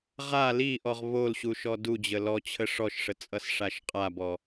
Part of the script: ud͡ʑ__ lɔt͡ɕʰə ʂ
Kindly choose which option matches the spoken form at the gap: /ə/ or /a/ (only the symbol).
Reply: ə